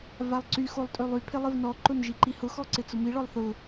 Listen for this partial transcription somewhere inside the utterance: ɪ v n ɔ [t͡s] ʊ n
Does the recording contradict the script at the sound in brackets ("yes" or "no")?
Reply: yes